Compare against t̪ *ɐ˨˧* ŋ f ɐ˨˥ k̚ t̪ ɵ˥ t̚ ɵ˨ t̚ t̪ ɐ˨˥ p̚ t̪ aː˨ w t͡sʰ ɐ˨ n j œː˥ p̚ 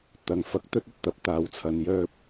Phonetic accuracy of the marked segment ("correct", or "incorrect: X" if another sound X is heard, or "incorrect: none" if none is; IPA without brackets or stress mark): correct